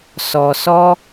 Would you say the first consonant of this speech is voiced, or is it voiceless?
voiceless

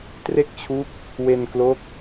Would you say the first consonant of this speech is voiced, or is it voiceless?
voiceless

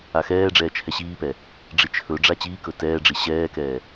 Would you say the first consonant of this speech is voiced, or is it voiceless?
voiceless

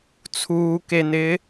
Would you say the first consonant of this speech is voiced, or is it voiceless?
voiceless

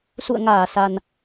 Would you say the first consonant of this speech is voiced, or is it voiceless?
voiceless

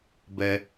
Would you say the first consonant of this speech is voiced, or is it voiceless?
voiced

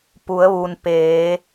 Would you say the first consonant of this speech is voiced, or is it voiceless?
voiceless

